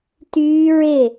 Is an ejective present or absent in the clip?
absent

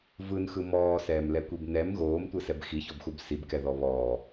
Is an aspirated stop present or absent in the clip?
absent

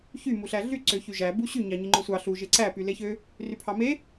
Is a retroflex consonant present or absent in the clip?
absent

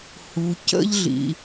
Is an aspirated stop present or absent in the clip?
absent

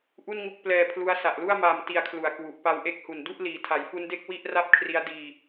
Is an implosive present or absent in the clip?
absent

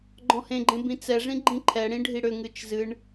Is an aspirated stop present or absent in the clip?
present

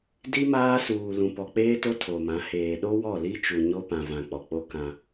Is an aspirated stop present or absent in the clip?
present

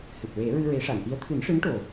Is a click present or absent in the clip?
absent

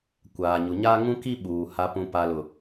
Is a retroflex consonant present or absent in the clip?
absent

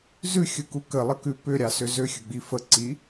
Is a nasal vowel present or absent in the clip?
absent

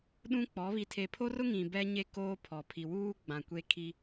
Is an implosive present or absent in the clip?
present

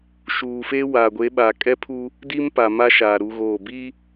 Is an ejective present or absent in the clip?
present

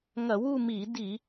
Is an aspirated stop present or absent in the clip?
absent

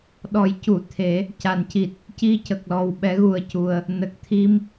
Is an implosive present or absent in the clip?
present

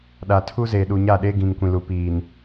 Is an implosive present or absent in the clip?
present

